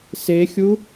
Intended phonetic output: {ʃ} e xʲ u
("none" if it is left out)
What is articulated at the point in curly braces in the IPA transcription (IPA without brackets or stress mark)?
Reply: s